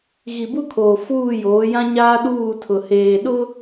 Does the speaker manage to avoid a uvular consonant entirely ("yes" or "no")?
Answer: yes